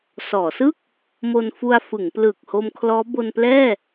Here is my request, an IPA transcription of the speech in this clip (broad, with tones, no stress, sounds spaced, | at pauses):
s ɔː˩˦ s ɯ˥˩ k̚ | m o˧ n f u˧ a̯ f ɯ˩˦ ŋ p l ɯː˨˩ k̚ h o˧ m kʰ l ɔː˦˥ b o˧ n p l ɛː˥˩